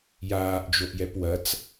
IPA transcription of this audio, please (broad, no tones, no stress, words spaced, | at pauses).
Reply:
jaːʔd͡ʒoʔjɛp wɐt͡s